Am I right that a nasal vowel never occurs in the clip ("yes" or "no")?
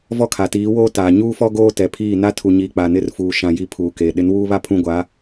no